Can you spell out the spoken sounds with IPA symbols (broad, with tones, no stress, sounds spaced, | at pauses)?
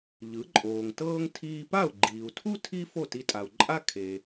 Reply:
ʎ ɯ˩˥ ǃʼ oː˩ ŋ t ɤː˥ ŋ tʰ iː˧ p a˥˩ u̯ ɡ͡ǃ iː˩ u̯ tʰ u˥ tʰ i˥ f o˥˩ t i˧ tʼ a˩ u̯ ǃʼ a˥ kʰ e˩